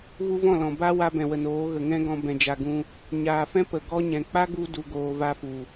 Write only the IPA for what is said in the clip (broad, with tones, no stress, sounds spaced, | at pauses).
ɣ u˧ v ɔ̃˦˨ l ɔ̃˨ b a˦ w a˦ b ɛ̃˨ w ə˨ n oː˨˦ ɣ ə˨ ŋ ɛ̃˦ ɡ ɔ̃˧ b ɛ̃˧ d͡ʒ a˧ ɡ ũ˦ | ɲ aː˨ f ɛ̃˦ p ə˨ ɡ ɔ˦ ɲ ɛ̃˨ k͡p a˦ ɡ u˧ d u˨ ɡ oː˨ v a˧ f u˨